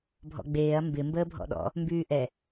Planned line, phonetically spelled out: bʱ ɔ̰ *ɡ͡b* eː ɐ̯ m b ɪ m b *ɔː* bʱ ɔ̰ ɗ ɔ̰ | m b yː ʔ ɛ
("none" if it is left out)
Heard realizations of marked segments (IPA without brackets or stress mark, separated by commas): ɡ͡b, əː